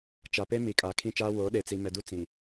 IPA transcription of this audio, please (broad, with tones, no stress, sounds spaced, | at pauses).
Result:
t͡ʃ a˨ p e˦ m i˨ kʼ aː˨ kʰ ĩ˦˨ t͡ʃ aː˦ w oː˨˦ ɗ e˨ t͡s i˨ m ɛ˨ d u˦ t͡s ĩ˨